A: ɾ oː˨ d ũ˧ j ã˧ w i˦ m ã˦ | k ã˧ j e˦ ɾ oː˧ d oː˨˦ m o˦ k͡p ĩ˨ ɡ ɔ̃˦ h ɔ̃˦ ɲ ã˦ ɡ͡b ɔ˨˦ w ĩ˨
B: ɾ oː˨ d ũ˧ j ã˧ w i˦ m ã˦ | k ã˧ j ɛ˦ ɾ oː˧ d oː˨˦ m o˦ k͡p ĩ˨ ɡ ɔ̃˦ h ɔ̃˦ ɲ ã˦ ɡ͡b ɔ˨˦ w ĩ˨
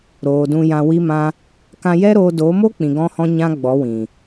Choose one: B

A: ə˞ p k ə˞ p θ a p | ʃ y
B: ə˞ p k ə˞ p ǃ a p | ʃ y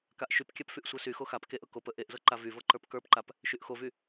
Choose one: B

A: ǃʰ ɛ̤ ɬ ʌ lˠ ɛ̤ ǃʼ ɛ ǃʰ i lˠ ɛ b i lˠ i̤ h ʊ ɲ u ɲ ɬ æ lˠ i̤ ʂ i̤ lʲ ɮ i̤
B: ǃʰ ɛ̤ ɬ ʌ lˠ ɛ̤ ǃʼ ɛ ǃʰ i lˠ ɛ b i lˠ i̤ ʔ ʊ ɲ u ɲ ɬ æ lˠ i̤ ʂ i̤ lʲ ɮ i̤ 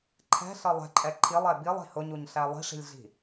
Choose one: A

